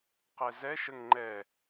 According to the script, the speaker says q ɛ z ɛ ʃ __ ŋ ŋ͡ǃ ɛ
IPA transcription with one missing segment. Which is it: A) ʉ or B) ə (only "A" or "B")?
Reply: B